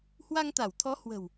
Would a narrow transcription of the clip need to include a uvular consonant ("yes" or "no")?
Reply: no